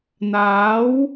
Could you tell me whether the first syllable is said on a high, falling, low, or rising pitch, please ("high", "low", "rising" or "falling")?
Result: rising